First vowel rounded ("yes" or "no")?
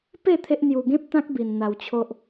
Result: no